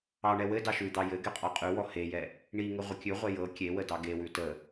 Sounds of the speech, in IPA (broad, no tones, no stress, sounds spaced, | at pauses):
ɑ ɳ ɛ w ɘ d ɑ ʃ ʉ d̪ ɑ j ɘ ɡ ɛ qʼ ɔ qʼ ʉ w ɔ h e j ɛ | ɳ i ŋ ɘ ʁʷ ə kʲ ʉ ʁʷ ɛ j ɤ kʲ e w ə d ɑ ɡ e w ʉ t ə